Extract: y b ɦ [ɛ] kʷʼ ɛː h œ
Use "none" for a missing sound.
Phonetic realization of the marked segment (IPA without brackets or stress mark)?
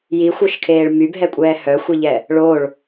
ɛ